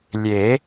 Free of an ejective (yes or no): yes